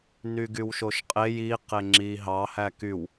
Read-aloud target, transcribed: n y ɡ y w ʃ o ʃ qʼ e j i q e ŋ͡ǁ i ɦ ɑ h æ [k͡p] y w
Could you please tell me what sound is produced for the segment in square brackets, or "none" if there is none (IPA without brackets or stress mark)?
k